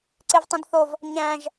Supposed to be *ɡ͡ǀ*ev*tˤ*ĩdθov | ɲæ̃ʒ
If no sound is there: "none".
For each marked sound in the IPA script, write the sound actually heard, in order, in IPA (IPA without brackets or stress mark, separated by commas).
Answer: ǀ, tˤ